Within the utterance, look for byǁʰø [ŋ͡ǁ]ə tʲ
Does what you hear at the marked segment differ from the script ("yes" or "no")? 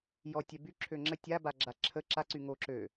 no